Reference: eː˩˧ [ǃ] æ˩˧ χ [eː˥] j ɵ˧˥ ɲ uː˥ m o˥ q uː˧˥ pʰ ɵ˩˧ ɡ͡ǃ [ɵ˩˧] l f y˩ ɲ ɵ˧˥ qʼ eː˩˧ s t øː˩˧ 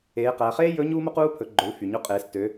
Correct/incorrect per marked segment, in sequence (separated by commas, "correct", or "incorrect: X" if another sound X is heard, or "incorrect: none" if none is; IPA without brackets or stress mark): incorrect: q, correct, correct